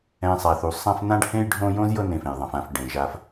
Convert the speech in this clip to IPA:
ɛ̃˨ sˤ a˩ θ u˩ sˤ ã˦ f n ã˦ ɖ h ẽ˦ j ɖʱ õ˦ j õ˥ z j ɤ˦ n ẽ˨ f ẽ˩ j ðˤ ã˩ f ã˨ f ɖ ẽ˩ ʒ a˨ f

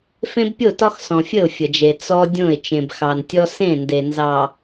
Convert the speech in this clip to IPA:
f ẽ˦ b pʲ o˦˨ t ɒ˦ x s ɔ̃˨ fʲ ə˦˨ ʊ̯ fʲ ə˨ d͡ʒ e˨ t͡s ɔ˦ dʲ õ˦˨ ɪ̯ t͡ʃ ẽ˨ b x ɑ˨ n tʲ ɔ˦ s ẽ˦˨ n d e˨ n z ɑ˨

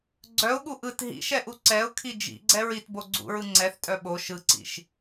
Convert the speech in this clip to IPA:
ɡ͡ǀ œ ʊ̯ ɠ u ʔ ɯ t ɦ ḭ ʃ ɛ ʔ u ǀ ɛ ʊ̯ kʰ i d͡ʒ ḭ ɡ͡ǀ ɛ ɹ i t b o ɡ͡ǀ ṵ ɹ ɯ ŋ͡ǀ ɛ θ tʼ œ ɓ o ʃ ɯ ǀ ḭ ʃ

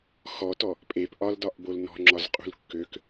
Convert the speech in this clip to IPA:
x ɔ t ɔ | pʼ e p ʔ ɒ l d ɒ ʔ b o l n ɔ̤ ŋ͡ǁ ɒ z qʼ ṳ l kː ø k

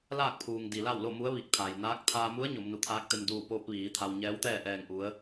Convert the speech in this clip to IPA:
l aː˥˨ k̚ pʰ uː˩ ŋ d i˩ l a˥˨ w l o˥˨ m u˧˥ ə̯ ʋ i˧˩ k̚ t̪ʰ a˩ j n aː˧˥ k̚ t̪ʰ aː˧ m u˧˥ ə̯ ɲ o˩˧ m n u˩ t̪ʰ aː˧˥ k̚ t̪ e˧ m d uː˧˩ p oː˧ p̚ ʋ iː˩˧ t̪ʰ a˧ w ɲ ɛː˧˥ w t̪ ɛː˥˨ ʔ ɛː˧˩ ŋ ʔ u˩˧ ə̯

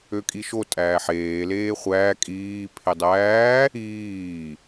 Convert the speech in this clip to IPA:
ø kʼ i ʃ o tʼ æː ħ eː l eː χʷ æː kʼ iː pʰ e dˤ æː | iː

